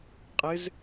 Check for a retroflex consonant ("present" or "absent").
absent